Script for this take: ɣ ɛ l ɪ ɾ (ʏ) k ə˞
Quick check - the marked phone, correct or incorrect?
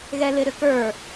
correct